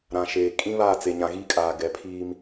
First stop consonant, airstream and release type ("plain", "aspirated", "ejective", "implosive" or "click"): ejective